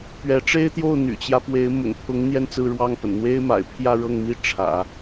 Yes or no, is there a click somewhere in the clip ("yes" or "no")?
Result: no